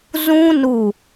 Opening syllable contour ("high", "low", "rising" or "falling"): high